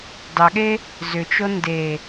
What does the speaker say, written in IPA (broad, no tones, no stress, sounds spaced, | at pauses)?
d ɑ ɠ e | z ʏ t͡ʃ o n d e